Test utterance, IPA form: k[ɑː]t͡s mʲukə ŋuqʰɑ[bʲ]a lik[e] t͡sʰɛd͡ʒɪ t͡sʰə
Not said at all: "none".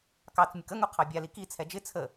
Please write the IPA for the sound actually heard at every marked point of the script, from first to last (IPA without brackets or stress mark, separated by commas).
ɑ, bʲ, i